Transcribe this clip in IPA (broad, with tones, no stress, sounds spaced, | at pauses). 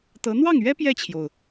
t̪ ɤ˧˥ n̪ w ɑ˥˩ ŋ ɥ ɛ˥ p j ɛ˥˩ t͡ɕʰ j o˩ ʊ̯